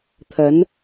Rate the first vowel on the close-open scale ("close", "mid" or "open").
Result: open